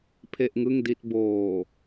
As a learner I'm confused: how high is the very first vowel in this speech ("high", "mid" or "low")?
mid